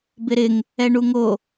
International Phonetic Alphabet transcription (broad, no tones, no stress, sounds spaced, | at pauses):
b ɪ ɾ ɪ ŋ | ɛ ɳ u ŋ o